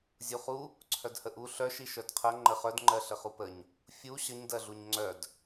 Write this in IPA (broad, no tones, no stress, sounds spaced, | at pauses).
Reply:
zʲ u χ u | ǀʰ œ d h ə ʔ u ɬ œ ʃ i ʃ œ d qʰ ɜ ŋ͡ǃ ə χ œ d ŋ͡ǃ ɜ ɬ ə χ u p ə ɲ | fʲ u ɕ ə ɲ d ɜ ɮ u ɲ ŋ͡ǀ œ d